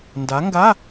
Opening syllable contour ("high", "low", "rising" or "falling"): rising